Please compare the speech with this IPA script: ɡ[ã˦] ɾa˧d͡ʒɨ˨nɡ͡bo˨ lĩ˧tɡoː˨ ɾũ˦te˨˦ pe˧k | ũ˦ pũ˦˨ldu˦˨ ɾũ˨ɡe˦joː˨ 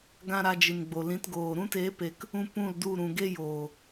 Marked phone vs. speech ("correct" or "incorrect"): correct